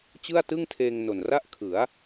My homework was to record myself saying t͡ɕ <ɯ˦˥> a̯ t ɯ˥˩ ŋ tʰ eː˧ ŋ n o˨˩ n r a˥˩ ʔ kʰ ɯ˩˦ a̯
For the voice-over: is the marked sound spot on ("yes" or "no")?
no